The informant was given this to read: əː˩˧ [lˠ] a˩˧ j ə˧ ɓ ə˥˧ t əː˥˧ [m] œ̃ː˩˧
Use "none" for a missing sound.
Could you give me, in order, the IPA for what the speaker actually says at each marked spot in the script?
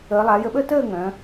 lˠ, ŋ

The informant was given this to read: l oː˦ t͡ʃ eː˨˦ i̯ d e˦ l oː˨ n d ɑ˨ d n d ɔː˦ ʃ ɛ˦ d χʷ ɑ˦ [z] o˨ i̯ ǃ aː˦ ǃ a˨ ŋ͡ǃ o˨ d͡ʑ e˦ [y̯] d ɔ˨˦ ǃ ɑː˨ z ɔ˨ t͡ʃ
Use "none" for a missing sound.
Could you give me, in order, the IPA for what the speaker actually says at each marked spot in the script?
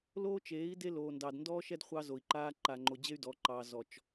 z, y̯

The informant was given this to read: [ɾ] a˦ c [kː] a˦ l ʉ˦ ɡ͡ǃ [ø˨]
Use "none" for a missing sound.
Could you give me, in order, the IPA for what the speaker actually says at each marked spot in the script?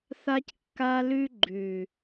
θ, kː, ʉ˨

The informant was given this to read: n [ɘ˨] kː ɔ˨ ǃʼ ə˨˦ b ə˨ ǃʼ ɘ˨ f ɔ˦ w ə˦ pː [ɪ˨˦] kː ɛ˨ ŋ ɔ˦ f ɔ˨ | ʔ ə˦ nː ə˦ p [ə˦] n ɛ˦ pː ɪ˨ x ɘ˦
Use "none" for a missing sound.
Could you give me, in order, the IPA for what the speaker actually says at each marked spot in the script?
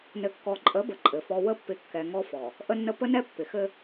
ɘ˨, ɪ˨˦, ə˦

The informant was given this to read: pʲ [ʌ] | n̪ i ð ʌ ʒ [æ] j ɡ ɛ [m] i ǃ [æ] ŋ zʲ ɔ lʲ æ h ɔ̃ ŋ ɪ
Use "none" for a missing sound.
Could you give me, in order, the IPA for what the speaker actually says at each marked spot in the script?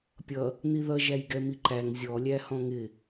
ʌ, æ, m, æ

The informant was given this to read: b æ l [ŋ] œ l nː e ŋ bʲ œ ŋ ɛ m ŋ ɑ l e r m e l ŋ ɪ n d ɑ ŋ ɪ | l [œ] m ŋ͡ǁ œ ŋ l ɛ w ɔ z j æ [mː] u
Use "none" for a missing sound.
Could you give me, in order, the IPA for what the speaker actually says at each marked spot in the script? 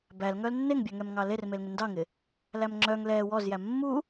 ŋ, æ, mː

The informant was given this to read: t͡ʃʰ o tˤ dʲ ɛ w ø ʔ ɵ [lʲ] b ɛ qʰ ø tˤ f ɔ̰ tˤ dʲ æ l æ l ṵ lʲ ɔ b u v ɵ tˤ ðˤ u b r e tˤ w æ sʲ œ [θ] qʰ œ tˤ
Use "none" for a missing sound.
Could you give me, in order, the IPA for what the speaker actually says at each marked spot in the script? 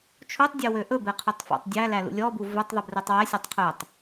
none, tˤ

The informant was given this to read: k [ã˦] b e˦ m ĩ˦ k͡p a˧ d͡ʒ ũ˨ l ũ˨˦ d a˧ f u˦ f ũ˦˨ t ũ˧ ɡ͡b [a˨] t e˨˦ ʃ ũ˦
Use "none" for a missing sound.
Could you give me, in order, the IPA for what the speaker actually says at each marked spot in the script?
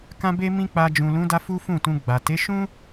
ã˦, a˨

